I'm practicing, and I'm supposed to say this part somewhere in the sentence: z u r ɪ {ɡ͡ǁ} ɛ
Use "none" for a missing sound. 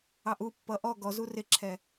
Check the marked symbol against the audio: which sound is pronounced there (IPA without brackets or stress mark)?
ǁʰ